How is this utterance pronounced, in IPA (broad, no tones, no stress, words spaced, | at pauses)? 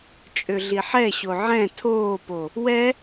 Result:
t͡ʃʼøɮiħɛɕo ʕɛ̃ tʰoːpo | wɛ